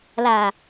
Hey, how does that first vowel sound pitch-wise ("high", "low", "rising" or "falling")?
low